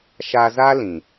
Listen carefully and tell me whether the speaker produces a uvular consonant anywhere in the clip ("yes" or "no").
no